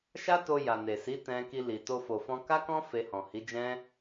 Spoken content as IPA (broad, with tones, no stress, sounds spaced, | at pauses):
ʃ a˦ t o˧ j a˨ n e˨ s i˨˦ t ɛ̃˧ k i˧ l i˨ t o˧ f o˨ f ɔ̃˧ k a˦ k ɔ̃˦ f e˧ h ɔ̃˨ h i˨˦ d͡ʒ ɛ̃˦